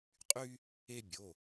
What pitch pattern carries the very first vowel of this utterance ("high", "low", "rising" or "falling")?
high